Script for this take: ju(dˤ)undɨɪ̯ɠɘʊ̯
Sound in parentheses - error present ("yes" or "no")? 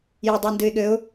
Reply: no